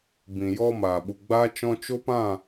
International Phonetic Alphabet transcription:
b ĩ˨ j ɔ˧ m aː˨ ɓ u˨ ɡ͡b aː˦ t͡ʃ ɔ̃˧ t͡ʃ o˦ p ã˦˨

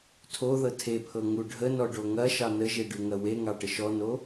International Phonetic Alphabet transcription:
tʰ o ð ɤ tʰ e pʰ ɤ ŋ u ɖʱ ə n ɔ ɖ o ŋ ɐ ʃ ɑ n ə ʒ e ɖ ʉ ŋ ɐ w e ŋ ɑ ʈ ə ʃ ɔ n o

